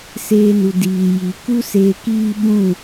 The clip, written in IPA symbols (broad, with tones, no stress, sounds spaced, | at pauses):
s eː˧ n u˨ d iː˨ j i˨ k u˦ s eː˧ k iː˦ ɓ ũ˦˨